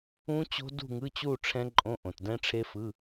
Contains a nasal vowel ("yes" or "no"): yes